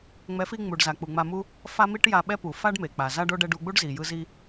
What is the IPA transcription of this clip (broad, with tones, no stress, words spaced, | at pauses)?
ŋ͡mɛ˨˦fi˧ ŋ͡mu˨ɖza˨k͡pu˨ ŋ͡ma˧mu˦ | fa˦mi˦ʈja˧ ɓɛ˦pu˨ fa˦ɖme˨ k͡pa˨za˦ɖo˦ ɖɛ˧ɖu˧ɡ͡bu˦ɖ zi˨jɯ˦ zi˧